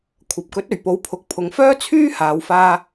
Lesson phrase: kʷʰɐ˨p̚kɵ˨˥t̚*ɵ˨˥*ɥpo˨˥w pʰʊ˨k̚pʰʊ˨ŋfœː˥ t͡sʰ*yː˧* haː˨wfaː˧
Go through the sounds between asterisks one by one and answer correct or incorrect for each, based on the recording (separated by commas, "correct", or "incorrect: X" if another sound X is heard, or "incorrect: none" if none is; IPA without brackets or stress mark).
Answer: incorrect: ɵ˨˩, incorrect: yː˥